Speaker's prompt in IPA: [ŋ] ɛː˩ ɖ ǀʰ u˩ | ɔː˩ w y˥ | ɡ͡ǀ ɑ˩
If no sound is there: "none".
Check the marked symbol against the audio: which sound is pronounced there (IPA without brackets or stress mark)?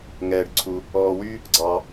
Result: ŋ